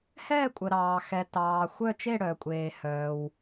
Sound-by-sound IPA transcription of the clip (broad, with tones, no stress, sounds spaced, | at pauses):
h ɛː˥˧ kʷʼ ə˨ ɾ ɑː˨ x ɛ˨ t ɑː˨ xʷ œ˥˧ t͡ʃ e˥˧ ɽ œː˨ kʷʼ eː˨ h œː˨ w